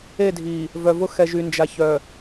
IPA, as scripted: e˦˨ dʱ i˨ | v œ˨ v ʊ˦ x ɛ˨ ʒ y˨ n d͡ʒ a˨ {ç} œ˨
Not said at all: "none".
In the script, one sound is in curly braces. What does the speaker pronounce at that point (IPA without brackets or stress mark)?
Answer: ç